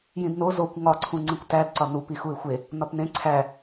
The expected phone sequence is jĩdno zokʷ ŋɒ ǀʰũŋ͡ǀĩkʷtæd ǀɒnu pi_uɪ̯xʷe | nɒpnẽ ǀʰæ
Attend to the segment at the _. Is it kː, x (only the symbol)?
x